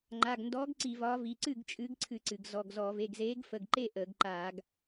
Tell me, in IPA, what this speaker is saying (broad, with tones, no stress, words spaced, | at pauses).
ŋ͡ǃa˩˧˩ɡndɔ˨˥ɡ ǀi˧˩˧vɒ˨˥vi˩˧˩ ǀɨ˥˩ɡt͡ʃʼɨː˨˥ɡǀʰɨ˧˩˧ǀɨ˩ɡ zɔ˩˧˩ɡzɔ˧˩˧ ve˩˧˩ɡzeː˨˥ɡfə˩˧˩ɡǃe˥˩ ʔəː˧˩˧ɡǃa˧˩˧ɡ